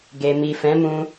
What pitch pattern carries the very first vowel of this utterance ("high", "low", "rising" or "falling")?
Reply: low